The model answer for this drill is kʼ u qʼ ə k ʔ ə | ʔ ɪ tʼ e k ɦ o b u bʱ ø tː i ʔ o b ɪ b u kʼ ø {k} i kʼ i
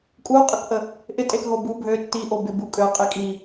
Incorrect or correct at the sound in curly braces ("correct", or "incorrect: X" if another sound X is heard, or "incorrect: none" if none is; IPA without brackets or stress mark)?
incorrect: qʼ